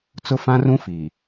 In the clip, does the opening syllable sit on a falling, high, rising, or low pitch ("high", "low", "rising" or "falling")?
high